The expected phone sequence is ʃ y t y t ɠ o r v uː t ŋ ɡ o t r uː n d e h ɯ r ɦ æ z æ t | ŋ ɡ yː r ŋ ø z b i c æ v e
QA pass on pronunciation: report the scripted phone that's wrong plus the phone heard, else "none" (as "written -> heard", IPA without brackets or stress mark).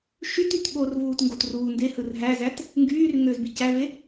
none